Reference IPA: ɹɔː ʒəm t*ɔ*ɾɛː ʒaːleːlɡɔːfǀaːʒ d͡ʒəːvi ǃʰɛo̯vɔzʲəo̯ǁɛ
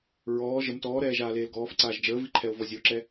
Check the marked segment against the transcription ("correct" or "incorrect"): incorrect